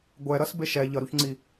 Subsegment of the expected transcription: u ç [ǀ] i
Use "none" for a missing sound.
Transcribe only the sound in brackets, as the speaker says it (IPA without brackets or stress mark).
ŋ͡ǀ